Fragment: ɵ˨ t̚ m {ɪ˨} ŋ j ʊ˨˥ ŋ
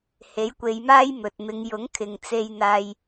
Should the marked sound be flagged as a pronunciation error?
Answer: yes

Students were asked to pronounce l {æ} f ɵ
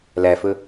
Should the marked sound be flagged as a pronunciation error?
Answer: no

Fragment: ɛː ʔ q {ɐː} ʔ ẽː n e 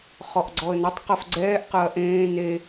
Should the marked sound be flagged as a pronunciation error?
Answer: no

